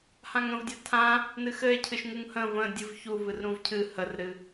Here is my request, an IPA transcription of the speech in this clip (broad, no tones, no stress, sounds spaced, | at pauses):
h ã ŋ ə̃ v dʲ a tʰ ã | n ɨ x ɘ e̯ cʰ ɨ ʃ ŋ u ŋ h ə̃ v ə̃ dʲ ɨ v ç u v ɨ r ɾ ũ v cʰ ɨ h ə r ɾ ɨ